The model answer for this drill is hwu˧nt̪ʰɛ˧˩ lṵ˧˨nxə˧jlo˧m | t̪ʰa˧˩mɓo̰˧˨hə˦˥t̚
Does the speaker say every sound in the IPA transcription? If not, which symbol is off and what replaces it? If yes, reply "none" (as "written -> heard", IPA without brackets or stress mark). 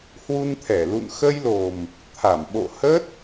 o˧ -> o˨˩